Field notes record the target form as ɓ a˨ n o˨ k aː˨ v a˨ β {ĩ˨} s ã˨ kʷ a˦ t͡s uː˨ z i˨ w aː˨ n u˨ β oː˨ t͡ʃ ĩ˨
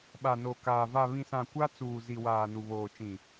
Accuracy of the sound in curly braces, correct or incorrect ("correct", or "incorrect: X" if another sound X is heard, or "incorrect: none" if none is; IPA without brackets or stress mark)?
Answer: correct